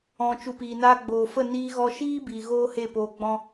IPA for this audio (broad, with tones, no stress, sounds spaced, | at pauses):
ɔ̃˨ t͡ʃ u˨ p iː˨ n aː˧ ɡ͡b oː˨ f ə˦˨ n iː˧ ɣ ɔ˧ ʃ iː˦ b iː˨ ɣ oː˦ h e˦˨ p oː˧ ɡ͡b ɔ̃˦